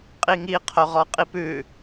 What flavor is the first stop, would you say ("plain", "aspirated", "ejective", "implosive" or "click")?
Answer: ejective